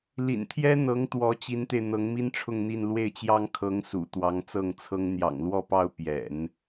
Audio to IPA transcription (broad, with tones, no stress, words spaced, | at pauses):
lḭ˨˩nt̪ʰjɛ˥ n̪ɤ˧˥ŋt̪wɔ˧˥ t͡ɕi˧˥nt̪e˧ɪ̯ n̪ɤ˧˥ŋmi˥nʈ͡ʂʰʊ˥˧ŋn̪i˥˧n lwe˥˩ɪ̯t͡ɕjɑ˥ŋ kʰɤ˧˥ŋsṵ˨˩ t̪wɑ˧˥ŋt͡sɤ˥˩ŋt͡sʰɤ˥ŋ n̪jɑ̰˨˩ŋlwɔ˥˧pɑ˥˩ʊ̯ pjɛ̰˨˩˦n